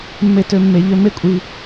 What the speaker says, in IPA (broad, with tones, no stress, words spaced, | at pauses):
mːe˧˩tø˧˩ mːe˩˧ʎø˧ me˥˧kʷʼi˧